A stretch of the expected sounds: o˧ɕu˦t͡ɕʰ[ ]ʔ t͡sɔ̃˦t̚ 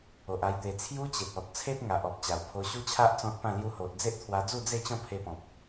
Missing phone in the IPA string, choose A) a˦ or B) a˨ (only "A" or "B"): A